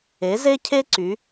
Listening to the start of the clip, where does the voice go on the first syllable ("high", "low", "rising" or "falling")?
rising